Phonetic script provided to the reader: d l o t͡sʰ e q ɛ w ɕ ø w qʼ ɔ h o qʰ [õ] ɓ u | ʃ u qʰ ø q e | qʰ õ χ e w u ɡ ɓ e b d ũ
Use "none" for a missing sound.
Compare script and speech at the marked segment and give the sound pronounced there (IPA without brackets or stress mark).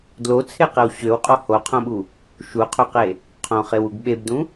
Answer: õ